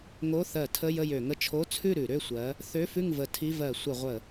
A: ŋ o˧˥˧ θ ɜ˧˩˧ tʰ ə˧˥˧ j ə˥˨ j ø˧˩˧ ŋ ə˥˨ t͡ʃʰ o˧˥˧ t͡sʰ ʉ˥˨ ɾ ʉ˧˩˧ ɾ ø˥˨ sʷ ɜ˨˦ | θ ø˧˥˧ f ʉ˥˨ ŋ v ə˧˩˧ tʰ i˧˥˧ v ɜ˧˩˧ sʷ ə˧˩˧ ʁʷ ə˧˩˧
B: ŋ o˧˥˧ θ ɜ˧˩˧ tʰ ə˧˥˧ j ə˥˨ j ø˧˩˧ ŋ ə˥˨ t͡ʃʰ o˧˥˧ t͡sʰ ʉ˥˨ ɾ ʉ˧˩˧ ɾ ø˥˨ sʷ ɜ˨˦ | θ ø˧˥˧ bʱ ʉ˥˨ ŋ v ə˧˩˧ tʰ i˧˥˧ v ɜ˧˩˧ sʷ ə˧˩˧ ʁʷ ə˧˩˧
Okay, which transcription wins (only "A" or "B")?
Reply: A